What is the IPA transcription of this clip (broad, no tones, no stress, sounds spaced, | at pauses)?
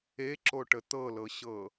e ǁ o ʈ ə t̪ ɤ l ɤ ɕ ɤ